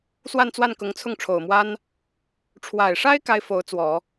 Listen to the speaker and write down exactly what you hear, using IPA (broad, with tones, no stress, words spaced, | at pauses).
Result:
swa˥˧nt͡swa˥˩nkʊ˧˥ŋt͡sʰʊ˥˩ŋ ʈ͡ʂʰo˨˩ʊ̯mwa˥n | ʈ͡ʂʰwa˨˩ɪ̯ʂa˥ɪ̯ ka˥ɪ̯fo˧˥ʊ̯t͡swɔ˨˩˦